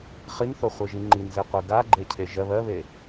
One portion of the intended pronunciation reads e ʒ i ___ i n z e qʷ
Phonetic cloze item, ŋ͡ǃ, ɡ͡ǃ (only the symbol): ŋ͡ǃ